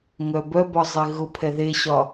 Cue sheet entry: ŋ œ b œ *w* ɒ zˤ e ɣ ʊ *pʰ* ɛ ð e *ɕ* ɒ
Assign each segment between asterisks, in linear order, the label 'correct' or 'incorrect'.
incorrect: b, correct, correct

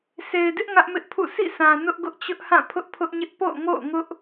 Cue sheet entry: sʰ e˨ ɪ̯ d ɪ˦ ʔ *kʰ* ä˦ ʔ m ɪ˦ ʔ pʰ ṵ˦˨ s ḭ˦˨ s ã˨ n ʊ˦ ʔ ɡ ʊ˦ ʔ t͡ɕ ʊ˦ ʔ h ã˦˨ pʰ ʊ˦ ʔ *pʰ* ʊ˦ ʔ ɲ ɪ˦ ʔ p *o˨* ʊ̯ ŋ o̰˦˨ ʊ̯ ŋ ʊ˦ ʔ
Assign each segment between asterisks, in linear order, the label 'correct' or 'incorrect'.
incorrect: ŋ, correct, incorrect: o̰˦˨

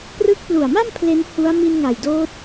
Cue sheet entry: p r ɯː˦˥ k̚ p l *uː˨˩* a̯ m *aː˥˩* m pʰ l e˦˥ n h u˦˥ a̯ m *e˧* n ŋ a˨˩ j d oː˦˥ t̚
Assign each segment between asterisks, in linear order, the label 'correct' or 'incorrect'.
incorrect: u˨˩, incorrect: a˥˩, incorrect: i˧

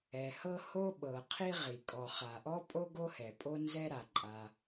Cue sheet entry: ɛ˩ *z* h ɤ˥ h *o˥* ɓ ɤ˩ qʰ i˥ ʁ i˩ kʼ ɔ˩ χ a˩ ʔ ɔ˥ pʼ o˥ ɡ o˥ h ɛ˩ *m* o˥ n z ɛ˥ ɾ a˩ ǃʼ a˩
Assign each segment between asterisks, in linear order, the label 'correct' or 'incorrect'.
incorrect: none, correct, incorrect: pʼ

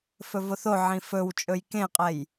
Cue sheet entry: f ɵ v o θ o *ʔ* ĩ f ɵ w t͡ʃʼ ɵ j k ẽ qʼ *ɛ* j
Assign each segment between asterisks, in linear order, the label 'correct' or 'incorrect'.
incorrect: ʕ, correct

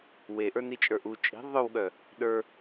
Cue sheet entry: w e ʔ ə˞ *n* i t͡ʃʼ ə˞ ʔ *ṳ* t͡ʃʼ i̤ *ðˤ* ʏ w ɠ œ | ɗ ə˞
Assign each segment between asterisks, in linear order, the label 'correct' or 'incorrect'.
correct, incorrect: u, correct

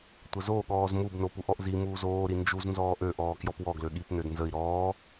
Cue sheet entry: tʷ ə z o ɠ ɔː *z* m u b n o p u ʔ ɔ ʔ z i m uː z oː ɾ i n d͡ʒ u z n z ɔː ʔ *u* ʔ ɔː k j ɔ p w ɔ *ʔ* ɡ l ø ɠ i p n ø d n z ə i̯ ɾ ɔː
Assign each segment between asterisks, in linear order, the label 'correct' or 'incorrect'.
correct, incorrect: ø, incorrect: none

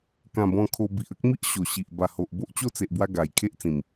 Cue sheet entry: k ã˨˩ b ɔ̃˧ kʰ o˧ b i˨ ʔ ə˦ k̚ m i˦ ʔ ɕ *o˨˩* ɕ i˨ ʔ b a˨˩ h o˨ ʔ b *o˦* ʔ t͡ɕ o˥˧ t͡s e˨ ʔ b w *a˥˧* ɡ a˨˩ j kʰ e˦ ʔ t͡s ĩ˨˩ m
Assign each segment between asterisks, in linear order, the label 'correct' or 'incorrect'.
correct, correct, incorrect: a˧

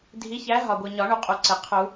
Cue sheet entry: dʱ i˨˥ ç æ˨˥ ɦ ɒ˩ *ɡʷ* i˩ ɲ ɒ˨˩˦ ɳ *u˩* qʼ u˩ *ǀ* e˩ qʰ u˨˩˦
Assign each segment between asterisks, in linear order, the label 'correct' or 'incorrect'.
correct, correct, correct

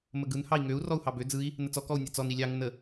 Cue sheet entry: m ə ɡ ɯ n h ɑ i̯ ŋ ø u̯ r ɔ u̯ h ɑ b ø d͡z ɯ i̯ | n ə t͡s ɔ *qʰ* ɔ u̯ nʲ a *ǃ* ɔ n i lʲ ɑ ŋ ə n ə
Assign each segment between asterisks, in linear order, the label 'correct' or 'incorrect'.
incorrect: k, incorrect: t͡s

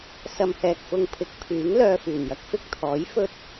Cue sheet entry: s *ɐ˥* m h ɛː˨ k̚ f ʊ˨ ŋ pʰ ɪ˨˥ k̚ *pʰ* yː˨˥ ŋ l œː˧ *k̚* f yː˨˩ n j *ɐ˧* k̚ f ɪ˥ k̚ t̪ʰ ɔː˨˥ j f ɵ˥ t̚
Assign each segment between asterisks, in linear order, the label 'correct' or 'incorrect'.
incorrect: ɐ˨, correct, incorrect: none, correct

